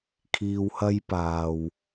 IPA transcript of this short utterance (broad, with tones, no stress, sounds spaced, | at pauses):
kʰ iː˧ w h ɐ˥ j p aː˨ w